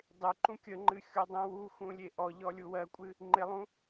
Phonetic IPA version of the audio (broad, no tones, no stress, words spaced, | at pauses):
dˤɪ ǃũkʲəŋ͡ǃɨ xʲodˤũwuxũ lʲeʔɔʎɔ lʲuwɜkʷʼɨ | ŋ͡ǃɪlˠũ